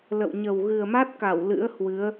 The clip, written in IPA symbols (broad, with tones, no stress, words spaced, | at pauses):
lə̰˧˨wɲə˨˩w ɣɨ˨˩ə̯ma˦˥t̚ka˧˩w lɨ̰˧˥ə̯hwɨ˨˦ə̯